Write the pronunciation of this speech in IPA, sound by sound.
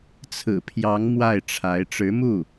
t͡sʰ ɹ̩˨˩ pʰ j ɑ˧˥ ŋ m w a˥˩ ɪ̯ ʈ͡ʂʰ a˧˥ ɪ̯ ʈ͡ʂ ɻ̩˧˥ m u˥˩

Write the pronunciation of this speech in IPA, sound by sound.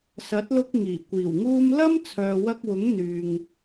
s ɐ˨˥ t̚ l ʊ˧ k̚ ŋ iː˨˩ kʷ iː˨˩ w ŋ uː˧ m l ɐ˥ m t͡sʰ œː˨ w ɐ˧ k̚ w ʊ˨˥ ŋ n̪ yː˨ ŋ

